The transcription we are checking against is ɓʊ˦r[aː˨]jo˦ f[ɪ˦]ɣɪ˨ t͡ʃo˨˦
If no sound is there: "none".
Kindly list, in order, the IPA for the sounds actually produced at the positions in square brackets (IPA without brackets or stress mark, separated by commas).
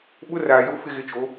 aː˨, ɪ˦